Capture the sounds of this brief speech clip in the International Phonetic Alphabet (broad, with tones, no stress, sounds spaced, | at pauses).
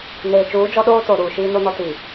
n eː˨ t͡ʃ uː˨˦ d͡ʒ ɔ˦ ɗ oː˦ t o˨ ɾ uː˨ ʃ iː˦ n o˦ n ɔ˦ t i˨